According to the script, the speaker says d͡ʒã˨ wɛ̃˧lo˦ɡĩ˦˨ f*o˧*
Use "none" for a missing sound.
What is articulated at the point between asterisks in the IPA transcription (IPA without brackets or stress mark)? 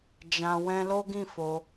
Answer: o˧